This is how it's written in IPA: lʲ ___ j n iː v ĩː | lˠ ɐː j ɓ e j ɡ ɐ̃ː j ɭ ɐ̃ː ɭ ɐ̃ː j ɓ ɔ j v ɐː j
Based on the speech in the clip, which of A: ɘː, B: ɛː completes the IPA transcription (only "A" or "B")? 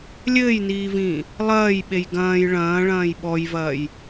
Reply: A